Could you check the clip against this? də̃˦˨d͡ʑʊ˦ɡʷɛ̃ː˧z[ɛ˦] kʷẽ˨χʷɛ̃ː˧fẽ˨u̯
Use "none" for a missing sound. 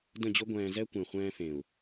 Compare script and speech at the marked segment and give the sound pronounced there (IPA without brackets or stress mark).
ɛ˦